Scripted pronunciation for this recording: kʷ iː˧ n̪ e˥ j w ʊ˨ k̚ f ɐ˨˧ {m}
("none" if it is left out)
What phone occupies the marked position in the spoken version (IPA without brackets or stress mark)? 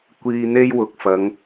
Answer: ŋ